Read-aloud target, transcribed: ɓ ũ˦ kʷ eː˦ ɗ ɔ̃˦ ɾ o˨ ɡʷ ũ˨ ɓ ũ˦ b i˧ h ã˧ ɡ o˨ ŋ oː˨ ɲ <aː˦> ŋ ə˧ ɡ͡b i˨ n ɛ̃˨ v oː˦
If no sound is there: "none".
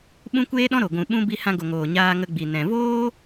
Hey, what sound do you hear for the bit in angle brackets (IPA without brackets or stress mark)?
aː˧